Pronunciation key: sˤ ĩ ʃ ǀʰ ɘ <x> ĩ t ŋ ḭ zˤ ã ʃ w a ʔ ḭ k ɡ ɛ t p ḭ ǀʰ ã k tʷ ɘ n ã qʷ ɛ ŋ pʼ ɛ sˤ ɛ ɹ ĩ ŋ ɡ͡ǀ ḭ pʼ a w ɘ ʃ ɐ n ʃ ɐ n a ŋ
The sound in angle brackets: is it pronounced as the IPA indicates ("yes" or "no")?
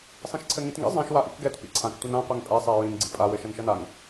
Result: no